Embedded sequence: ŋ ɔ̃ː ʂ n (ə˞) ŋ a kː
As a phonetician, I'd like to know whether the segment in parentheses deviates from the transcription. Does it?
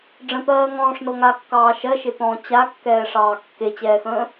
yes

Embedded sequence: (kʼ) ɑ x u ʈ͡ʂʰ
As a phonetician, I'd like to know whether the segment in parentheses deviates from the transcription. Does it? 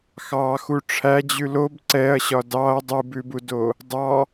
yes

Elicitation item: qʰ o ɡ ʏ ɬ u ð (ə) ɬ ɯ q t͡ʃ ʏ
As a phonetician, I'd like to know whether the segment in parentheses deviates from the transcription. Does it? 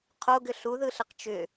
yes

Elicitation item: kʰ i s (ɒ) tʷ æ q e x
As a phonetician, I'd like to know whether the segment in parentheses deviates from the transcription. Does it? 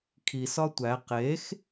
no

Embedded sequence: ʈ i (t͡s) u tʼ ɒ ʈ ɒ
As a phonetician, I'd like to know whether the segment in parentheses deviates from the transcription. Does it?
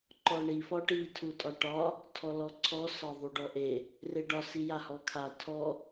yes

